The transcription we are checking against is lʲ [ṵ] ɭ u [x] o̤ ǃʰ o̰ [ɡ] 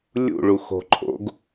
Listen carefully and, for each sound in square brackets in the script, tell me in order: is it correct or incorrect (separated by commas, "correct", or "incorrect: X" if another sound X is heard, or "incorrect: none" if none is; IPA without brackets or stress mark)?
correct, correct, correct